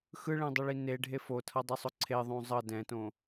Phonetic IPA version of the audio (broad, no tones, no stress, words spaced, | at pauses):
xɯɭɛ̃dˤʌɭi neɖʱe fotʰʌdˤisˤo ǀʰeðˤõ zˤʌ dɛ̃tõ